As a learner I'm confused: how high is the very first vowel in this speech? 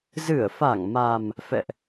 high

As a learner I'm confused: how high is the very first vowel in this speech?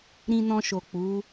high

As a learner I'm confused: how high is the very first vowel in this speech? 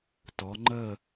mid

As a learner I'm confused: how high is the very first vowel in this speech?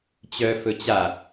mid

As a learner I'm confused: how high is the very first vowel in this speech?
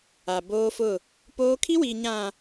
low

